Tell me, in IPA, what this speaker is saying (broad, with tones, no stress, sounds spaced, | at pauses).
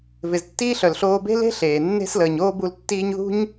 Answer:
v ɪ˩ z tː iː˥ ɬ œ˩ l ɬ oː˦ b e̤˥ l e̤˥ ɬ eː˩ nː e̤˥ s l əː˨ ɲ oː˥ b u˦ l tː iː˥ ɲ ð ṳ˥ ɲ